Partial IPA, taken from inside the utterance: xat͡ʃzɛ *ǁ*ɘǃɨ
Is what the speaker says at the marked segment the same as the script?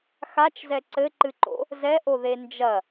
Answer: no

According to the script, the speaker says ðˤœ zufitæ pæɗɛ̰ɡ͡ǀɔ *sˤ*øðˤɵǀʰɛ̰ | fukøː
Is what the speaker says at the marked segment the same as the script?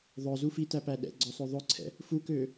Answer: yes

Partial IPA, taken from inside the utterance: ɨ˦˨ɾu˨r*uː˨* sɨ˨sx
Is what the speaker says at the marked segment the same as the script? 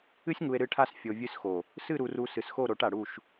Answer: no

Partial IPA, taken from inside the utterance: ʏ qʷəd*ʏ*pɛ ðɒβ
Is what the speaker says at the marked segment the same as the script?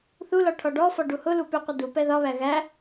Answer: no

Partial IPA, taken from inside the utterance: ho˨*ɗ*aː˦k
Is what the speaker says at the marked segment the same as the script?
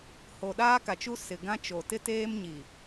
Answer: yes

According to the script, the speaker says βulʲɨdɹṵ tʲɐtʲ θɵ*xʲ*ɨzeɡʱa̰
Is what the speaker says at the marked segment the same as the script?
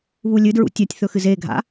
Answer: no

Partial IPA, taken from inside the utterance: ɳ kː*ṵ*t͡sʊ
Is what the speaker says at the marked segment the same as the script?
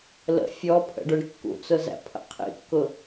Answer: yes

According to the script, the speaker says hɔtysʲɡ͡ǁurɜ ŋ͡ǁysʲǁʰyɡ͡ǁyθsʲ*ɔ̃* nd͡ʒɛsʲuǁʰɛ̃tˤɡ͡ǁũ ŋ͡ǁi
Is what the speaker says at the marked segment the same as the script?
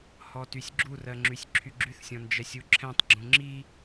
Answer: yes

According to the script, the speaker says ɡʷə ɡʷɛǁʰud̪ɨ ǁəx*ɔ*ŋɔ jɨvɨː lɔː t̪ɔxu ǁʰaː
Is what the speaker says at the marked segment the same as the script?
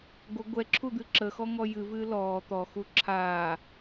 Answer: yes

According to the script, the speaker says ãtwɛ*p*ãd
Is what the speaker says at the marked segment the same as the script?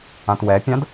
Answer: no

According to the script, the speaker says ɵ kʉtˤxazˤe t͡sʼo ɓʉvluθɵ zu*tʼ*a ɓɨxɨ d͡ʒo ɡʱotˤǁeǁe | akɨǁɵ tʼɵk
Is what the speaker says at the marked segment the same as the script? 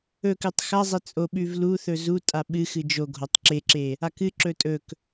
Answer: yes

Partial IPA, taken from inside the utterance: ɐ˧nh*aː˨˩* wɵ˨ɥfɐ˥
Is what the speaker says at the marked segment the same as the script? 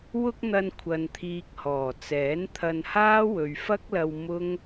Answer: no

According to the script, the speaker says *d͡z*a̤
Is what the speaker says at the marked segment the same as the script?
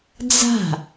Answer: yes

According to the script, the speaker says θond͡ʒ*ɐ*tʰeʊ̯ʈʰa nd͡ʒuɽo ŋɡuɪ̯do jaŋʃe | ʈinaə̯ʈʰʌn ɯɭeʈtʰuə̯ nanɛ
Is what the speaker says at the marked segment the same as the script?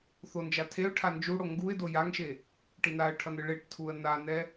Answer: no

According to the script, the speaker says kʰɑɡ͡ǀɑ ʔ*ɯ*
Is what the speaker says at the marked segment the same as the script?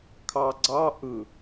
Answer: yes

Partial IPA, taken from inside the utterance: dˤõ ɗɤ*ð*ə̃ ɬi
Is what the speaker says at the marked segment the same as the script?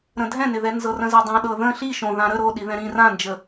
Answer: yes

